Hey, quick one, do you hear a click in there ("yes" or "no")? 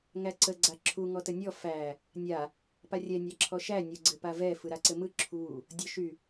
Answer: yes